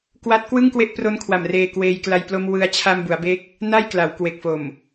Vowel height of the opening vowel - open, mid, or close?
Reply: open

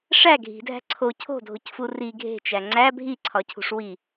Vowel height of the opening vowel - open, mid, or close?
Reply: open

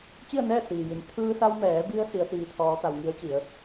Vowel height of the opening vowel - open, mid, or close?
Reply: close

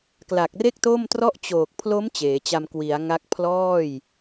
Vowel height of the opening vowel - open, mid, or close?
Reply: open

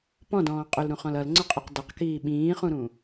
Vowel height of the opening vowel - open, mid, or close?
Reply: mid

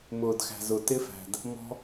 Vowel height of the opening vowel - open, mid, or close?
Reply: close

